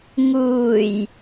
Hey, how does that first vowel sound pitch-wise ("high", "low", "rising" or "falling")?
low